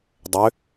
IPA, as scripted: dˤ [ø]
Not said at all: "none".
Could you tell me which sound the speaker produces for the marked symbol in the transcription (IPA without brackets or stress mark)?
ø